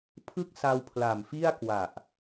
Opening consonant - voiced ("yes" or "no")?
no